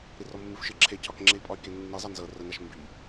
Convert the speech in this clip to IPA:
ɾirɔmːɨfʃɨ ǁʰecʰɒk ŋ͡ǁei̯pʼɒy̯kenːi zˤɑnzɤ rənaʃ mbi

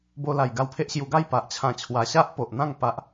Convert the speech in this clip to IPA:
bo˧la˨˩j ɡa˧wpʰe˦ʔɕju˧ ɡa˥˧j pa˨ʔt͡ɕʰã˧ t͡ɕʰwa˧ ɕa˦ʔpo˨ʔn̪ã˥˧ŋ pa˦ʔ

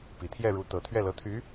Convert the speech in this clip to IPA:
pi˨˩ t̪ʰjɛ˥˩ɻu˧˥t̪ɤ˨˩ t̪ʰɥɛ˥˩lɤ˧˥t̪ʰy˧˥

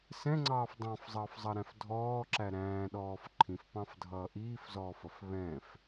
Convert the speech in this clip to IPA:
sɛ̃ŋ͡ǀɑːf dˤɑ̃fzˤʌːfzˤɑɾæ̃f dʱɔːǁæ ɾæ̃ːɗɔːf ǃʰĩfpɑ̃fdʱʌː ʔiːfzɔːfʌf βɛ̃f

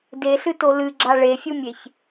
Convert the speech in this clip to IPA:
deɬɨ tolɨɡ͡ǁa ɭefʲumʲeç

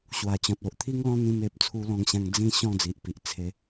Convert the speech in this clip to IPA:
ɕwa˨˩t͡ɕɔ̃˨t̚o˨ʔt̪ʰi˦ŋ lɔ̃˦n̪ĩ˧me˨p̚ t͡sʰu˧lɔ̃˧ŋɕã˧ŋ d͡zĩ˥˧ ɕɔ̃˥˧d͡zi˨ʔpi˨ʔ t͡sʰe˧

